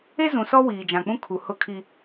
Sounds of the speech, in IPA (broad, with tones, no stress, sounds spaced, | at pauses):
e˦ z ũ˨ s ɔ˦ w iː˨ d͡ʒ ã˨ k͡p ũ˦ kʰ u˨ h ʊ˦˨ kʰ i˨